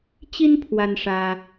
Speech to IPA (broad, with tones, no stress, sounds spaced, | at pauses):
t͡ɕ i˥ n pʰ w a˥ n ʂ ä˥